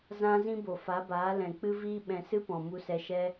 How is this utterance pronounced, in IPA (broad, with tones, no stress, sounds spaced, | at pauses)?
z ã˦ z ĩ˦ b o˨ f a˨˦ b aː˨˦ l ɛ̃˨ k͡p ɨ˦ v iː˦ ɓ ɛ̃˧ s ɨ˦ p ɔ̃˨ m u˧ s ɛ˧ ʃ ɛ˦